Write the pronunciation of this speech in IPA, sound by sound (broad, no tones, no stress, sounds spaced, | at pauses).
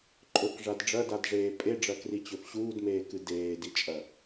ǃʼ ɵ k ʐ a d ɖ͡ʐ ɐ d a d ʐ eː pʼ e ɖ͡ʐ ɐ k r i t͡ɕ ɵ f ɕ uː d m eː k ɨ d eː d i t͡ʃʼ ɐ